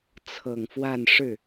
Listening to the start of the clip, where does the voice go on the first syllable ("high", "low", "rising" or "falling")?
low